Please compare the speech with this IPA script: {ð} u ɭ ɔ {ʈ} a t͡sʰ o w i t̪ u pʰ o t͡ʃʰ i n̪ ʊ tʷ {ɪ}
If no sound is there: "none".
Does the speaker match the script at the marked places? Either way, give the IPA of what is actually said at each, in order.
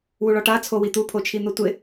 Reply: w, ʈ, ɪ

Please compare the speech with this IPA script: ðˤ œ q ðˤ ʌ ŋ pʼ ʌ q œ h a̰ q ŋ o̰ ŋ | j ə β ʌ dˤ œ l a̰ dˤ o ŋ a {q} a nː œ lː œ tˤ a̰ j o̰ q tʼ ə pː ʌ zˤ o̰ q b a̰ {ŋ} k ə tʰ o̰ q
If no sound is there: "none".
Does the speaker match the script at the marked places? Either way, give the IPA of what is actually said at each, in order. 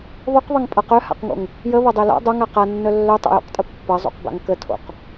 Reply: q, ŋ

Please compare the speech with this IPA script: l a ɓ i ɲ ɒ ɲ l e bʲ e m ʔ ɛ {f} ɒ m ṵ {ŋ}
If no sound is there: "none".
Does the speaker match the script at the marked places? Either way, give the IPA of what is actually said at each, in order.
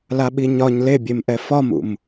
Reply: f, m

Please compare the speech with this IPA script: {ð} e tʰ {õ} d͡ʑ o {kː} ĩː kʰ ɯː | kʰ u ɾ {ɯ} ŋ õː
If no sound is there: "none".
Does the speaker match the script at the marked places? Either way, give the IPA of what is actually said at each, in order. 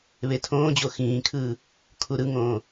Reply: β, õː, x, ɯ

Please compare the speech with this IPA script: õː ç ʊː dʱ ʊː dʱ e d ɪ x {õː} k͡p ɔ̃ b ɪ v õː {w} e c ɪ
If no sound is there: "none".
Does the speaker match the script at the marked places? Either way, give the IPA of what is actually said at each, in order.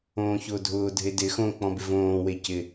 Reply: õː, w

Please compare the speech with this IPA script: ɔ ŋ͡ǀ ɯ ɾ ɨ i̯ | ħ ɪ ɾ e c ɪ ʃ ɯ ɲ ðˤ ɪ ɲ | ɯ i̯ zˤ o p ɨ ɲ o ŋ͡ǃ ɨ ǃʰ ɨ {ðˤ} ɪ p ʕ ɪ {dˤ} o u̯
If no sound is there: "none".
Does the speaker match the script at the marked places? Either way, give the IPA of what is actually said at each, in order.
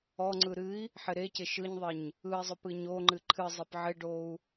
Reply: zˤ, ɖ

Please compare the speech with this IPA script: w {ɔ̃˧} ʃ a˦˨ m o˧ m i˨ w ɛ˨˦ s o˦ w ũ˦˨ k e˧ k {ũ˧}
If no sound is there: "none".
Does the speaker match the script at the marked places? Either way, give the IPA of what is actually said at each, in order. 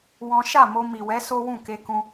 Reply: ɔ̃˦, ũ˧

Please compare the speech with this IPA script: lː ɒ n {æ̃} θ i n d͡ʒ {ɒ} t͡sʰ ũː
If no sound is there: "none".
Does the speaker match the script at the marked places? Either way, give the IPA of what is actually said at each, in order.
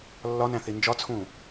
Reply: æ̃, ɒ

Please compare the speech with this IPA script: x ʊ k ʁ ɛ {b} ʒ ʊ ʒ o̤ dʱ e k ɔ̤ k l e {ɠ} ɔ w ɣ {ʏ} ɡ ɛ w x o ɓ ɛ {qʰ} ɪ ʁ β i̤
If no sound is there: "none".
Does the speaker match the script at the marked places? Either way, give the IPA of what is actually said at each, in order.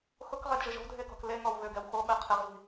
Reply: d, ŋ, ʏ, qʰ

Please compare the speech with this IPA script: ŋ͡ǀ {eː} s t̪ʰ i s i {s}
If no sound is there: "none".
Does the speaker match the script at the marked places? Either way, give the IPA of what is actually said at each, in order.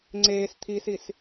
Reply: eː, s

